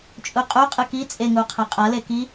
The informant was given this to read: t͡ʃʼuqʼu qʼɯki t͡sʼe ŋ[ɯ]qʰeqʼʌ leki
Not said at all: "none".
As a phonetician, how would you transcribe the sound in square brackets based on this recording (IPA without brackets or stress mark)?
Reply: u